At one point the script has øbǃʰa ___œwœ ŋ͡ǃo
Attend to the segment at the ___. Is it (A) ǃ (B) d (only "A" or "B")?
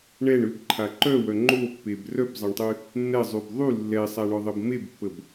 A